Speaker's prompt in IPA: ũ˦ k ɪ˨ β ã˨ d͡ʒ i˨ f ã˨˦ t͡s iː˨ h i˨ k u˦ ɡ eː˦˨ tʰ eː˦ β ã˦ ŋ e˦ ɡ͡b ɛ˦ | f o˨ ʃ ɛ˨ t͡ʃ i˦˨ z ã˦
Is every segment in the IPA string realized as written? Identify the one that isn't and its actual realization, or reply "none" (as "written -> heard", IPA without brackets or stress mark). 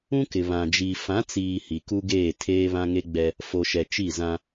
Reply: none